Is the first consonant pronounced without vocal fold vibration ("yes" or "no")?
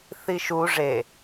yes